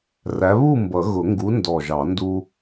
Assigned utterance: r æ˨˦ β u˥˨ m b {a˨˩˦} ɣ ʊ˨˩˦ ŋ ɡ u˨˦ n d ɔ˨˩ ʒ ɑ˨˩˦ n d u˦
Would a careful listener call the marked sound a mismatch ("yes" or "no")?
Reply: yes